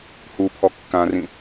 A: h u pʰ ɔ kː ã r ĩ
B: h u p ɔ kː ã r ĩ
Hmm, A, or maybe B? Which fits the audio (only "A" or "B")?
A